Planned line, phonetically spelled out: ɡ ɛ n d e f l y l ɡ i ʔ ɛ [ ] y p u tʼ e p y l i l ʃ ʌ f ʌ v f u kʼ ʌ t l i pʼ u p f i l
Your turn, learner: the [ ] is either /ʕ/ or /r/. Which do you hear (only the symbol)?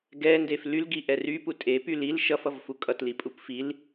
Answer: r